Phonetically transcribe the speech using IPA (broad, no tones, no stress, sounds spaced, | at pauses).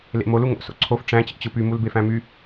l ḛ m o l u ŋ o̰ s o̰ ǀʰ o f ʈ͡ʂ æ̃ t͡ɕ ḭ t͡ɕ ɯ p y m u l b e f æ̃ m y